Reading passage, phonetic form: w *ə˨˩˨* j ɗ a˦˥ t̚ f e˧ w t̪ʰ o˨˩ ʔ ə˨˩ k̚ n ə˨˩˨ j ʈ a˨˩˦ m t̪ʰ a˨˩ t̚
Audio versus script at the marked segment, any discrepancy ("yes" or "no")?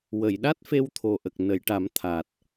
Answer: no